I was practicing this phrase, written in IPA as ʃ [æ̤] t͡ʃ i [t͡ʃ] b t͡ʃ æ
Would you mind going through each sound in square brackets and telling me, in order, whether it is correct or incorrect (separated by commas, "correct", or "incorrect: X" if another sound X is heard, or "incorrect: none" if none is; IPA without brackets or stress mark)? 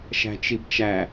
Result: correct, incorrect: none